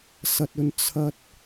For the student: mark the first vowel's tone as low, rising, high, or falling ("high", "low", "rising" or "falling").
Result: low